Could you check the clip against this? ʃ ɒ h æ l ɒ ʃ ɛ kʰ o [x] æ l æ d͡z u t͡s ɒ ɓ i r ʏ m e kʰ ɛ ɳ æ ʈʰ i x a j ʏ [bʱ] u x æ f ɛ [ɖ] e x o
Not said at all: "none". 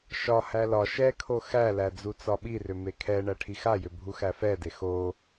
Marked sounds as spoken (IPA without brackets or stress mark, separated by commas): x, bʱ, d